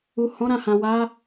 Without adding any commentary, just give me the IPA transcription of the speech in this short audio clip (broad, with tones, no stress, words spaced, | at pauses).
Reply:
u˨ hɔ̃˨˦ɾã˦˨hã˨ wa˨˦